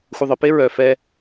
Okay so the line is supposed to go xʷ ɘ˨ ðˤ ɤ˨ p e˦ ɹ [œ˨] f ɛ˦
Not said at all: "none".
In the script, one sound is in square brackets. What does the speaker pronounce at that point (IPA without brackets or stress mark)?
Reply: œ˨